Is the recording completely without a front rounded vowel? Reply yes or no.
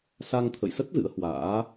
yes